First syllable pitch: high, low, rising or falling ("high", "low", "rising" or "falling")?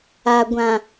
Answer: low